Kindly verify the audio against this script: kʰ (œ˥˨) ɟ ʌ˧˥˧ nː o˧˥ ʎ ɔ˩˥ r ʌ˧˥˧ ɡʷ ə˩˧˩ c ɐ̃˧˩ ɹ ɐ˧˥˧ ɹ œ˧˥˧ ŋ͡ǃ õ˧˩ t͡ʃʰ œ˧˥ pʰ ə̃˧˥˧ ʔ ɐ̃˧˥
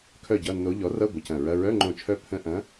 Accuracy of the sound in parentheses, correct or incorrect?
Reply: correct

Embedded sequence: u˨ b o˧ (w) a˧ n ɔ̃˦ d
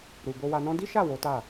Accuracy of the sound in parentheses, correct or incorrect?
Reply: correct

